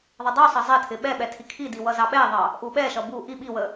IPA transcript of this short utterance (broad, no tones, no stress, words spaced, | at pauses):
ðˤɪdˤusˤʌ zˤɛtʰɪ ɓɛɓɛ tʰikʰidi wʌzɑɓɛðˤɑ | ʔuɓɛʃʌ bu ʔi ɓiwə